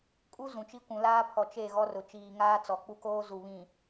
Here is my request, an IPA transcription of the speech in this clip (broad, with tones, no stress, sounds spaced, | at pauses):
kʼ u˦ z ũ˨ t͡ʃ i˦ kʷ ũ˨ l aː˦ pʰ ɔ˨ t͡ʃ e˦˨ ɣ ɔ˦ r ʊ˨ t͡ʃ iː˨ ŋ aː˦ t͡s ɔ˨ k͡p u˦ k oː˦ z u˨ β ĩ˨